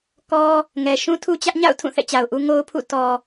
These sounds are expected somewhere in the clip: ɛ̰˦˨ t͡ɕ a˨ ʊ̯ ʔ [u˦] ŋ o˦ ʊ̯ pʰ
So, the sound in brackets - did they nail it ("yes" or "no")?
yes